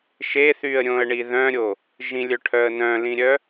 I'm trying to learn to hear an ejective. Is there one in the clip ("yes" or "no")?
no